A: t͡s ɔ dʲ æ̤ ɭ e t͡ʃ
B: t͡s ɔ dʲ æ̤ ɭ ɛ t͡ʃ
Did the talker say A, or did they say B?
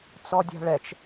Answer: B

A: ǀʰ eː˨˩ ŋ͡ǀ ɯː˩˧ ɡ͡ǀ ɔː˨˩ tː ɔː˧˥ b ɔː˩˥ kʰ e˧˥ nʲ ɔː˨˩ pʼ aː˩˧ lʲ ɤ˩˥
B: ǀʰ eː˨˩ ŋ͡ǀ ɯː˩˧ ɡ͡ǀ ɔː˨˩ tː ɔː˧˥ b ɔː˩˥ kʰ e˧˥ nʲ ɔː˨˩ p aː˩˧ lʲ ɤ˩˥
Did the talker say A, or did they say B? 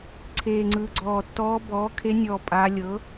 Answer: A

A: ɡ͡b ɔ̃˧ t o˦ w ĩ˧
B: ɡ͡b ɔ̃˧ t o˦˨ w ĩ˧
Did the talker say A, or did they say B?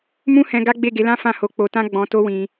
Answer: A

